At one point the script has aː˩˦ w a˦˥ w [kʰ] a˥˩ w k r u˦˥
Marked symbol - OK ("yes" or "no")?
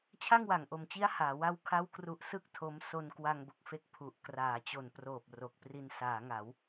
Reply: yes